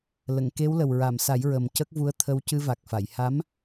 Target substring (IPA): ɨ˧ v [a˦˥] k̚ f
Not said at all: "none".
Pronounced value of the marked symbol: a˨˩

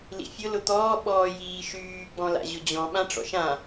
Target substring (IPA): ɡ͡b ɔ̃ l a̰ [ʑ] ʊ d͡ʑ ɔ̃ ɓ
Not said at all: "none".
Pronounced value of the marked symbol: ʑ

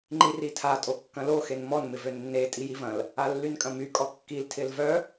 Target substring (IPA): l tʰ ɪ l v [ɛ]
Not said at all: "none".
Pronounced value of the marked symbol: œ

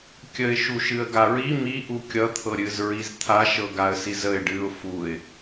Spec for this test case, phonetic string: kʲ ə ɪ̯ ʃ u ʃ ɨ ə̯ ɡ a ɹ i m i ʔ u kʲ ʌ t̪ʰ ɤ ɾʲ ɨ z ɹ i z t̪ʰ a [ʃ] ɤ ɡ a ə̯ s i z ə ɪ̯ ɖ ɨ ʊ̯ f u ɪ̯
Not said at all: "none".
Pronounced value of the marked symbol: ʃ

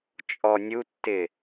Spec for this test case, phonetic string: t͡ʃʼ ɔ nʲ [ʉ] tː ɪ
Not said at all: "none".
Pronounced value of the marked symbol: u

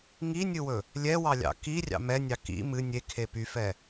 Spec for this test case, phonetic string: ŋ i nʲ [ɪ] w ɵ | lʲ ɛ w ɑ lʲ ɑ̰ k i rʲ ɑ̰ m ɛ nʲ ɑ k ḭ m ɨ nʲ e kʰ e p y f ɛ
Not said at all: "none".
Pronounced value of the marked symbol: ɨ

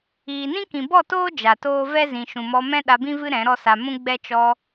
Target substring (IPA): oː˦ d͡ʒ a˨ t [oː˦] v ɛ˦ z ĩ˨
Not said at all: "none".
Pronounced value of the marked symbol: oː˦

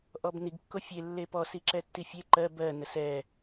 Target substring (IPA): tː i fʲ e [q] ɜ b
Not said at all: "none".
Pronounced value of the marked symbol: ǃ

